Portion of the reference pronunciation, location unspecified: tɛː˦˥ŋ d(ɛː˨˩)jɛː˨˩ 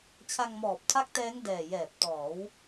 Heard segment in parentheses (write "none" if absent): ɛː˨˩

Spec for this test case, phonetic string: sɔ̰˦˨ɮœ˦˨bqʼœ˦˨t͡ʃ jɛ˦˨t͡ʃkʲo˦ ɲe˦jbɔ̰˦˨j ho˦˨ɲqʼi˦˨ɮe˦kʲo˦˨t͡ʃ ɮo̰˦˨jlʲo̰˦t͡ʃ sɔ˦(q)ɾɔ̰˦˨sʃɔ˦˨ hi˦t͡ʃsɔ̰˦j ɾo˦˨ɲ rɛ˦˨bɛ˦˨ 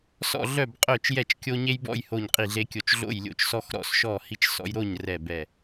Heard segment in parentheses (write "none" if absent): x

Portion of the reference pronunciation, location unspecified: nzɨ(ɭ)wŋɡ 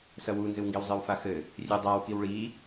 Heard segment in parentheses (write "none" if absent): none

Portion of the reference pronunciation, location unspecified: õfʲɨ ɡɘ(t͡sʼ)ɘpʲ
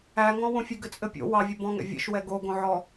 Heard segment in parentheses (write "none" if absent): t͡sʼ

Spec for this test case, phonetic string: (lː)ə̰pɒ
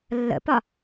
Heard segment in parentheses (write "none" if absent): lː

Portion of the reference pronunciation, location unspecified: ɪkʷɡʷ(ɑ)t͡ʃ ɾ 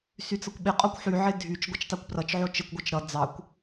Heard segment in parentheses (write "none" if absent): ʌ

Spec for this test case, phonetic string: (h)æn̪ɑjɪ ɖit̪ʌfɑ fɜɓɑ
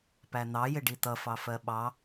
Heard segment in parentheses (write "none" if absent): p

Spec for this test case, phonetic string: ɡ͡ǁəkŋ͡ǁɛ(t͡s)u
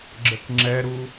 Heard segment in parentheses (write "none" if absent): ɾ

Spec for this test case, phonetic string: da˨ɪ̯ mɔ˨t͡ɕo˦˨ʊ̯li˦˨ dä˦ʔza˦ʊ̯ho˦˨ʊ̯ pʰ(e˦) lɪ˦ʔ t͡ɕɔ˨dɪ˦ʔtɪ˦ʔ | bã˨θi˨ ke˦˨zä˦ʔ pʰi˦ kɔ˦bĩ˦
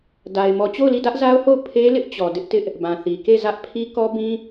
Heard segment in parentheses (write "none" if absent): e˦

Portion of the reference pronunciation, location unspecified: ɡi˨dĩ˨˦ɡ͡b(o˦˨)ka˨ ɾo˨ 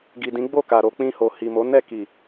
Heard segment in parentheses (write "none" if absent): o˦˨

